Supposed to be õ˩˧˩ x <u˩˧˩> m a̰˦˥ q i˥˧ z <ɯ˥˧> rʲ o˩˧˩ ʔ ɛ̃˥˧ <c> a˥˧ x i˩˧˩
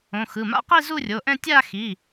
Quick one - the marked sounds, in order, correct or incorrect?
incorrect, incorrect, incorrect

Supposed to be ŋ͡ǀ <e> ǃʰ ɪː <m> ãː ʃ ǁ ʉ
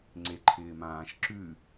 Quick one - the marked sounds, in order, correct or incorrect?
correct, correct

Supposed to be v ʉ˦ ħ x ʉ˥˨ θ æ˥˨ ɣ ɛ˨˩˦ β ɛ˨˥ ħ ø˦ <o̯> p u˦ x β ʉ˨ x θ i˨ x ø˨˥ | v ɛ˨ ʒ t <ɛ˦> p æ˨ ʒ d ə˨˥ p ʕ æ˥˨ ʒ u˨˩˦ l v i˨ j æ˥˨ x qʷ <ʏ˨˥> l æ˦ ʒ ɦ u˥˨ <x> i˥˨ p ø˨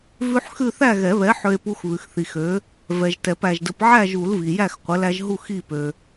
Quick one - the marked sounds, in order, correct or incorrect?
incorrect, incorrect, incorrect, correct

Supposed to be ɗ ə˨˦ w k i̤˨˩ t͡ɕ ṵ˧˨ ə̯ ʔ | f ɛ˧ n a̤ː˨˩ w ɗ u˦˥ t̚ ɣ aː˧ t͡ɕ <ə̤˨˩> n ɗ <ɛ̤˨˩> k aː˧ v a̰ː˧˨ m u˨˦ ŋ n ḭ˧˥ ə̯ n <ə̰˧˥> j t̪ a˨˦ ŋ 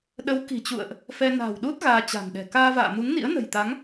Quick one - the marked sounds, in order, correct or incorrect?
incorrect, correct, incorrect

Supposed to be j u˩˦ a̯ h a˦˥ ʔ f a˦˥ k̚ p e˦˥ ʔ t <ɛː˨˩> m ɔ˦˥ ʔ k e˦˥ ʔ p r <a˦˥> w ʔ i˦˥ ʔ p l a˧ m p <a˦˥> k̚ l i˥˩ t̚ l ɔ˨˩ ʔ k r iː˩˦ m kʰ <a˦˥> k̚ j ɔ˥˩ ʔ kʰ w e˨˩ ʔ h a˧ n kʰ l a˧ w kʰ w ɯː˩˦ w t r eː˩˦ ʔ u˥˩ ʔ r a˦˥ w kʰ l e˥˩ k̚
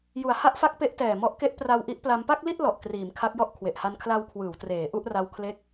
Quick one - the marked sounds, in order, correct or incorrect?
correct, incorrect, incorrect, correct

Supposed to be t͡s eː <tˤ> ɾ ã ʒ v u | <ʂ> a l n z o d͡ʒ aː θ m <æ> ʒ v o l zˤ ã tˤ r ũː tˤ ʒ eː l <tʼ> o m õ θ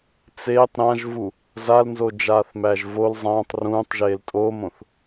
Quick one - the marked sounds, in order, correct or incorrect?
correct, incorrect, correct, correct

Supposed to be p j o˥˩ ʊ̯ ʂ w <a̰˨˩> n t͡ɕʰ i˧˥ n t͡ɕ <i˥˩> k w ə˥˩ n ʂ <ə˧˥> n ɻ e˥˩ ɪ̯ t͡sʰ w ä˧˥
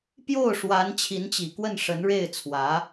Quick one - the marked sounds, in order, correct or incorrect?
incorrect, incorrect, correct

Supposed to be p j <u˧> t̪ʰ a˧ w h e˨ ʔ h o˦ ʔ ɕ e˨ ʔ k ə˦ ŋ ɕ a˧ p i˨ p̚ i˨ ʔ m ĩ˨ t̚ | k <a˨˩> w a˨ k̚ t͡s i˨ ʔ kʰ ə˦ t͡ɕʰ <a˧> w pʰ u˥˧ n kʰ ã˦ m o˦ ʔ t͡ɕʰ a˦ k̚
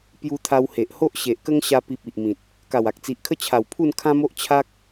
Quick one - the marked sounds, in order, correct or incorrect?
correct, correct, incorrect

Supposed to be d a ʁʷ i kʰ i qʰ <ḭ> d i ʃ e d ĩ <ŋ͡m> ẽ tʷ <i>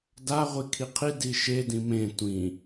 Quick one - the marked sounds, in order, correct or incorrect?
incorrect, incorrect, incorrect

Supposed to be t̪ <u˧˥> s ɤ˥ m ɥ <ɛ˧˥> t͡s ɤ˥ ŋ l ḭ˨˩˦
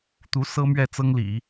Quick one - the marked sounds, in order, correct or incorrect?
correct, incorrect

